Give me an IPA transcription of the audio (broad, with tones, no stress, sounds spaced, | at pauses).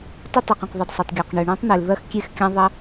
tˤ ɪ˥ tˤ ɐ˩ q ɐ̃˩ q ðˤ ɪ˩ d sˤ ɐ˩ tˤ ɡʲ ɔ˩ q ɳ ø˩ ɳ ɔ̃˥ tˤ n̪ e˩ l ð ɐ˥ x kʲ e˥ x kʲ ɐ̃˥ ðˤ ɐ˥